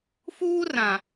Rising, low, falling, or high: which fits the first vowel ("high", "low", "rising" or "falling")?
high